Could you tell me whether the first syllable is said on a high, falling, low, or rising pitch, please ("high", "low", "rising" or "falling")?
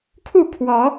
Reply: falling